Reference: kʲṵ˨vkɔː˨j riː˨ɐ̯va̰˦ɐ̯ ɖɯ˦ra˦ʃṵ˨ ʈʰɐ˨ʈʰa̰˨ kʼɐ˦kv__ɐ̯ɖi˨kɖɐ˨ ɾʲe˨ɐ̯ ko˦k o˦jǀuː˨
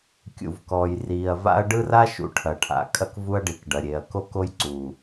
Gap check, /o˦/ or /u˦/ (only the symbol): u˦